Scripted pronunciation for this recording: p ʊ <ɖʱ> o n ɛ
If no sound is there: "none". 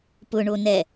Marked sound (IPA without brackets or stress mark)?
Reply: ɳ